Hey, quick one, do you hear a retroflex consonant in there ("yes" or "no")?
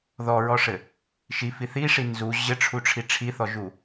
yes